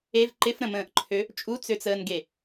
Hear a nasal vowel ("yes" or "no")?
yes